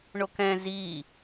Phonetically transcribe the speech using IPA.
ɳ o k ɛ̃ z i

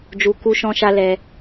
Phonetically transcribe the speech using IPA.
d͡ʒ u˧ k u˧ ʃ ɔ̃˧ ʃ a˧ l ɛ˧

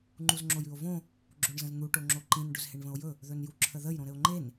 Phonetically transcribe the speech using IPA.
ŋ͡ǃ u z ŋ͡ǁ o j ʉ o̯ v õ | ɡ͡ǁ o ɳ z ə̃ z n̪ u ʈ o ŋ͡ǁ o ǃ ĩ n ɖ ɵ z h e ɳ v ə̃ o̯ j ɵ | ð ɵ n j u ǁʰ ə ð ə j ɾ õ ɾ ɘ o̯ ŋ͡ǃ e n

